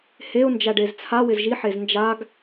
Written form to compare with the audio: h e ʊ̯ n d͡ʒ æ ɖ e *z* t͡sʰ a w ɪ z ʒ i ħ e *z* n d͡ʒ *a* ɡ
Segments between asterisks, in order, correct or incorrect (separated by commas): correct, correct, correct